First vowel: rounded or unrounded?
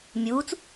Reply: rounded